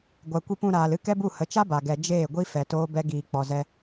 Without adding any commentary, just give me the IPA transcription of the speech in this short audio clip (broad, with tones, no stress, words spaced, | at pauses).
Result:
ɡʷa˨kʷi˧pũ˧ ɾaː˨lɨ˦kɛ˦bu˦˨ hə˨˦t͡ʃa˦ba˨ɡɛ˨ d͡ʒeː˦˨ɡʷi˦ fɛ˨toː˦ bɛ˦ ɡiː˨k͡pɔ˨zɛ˧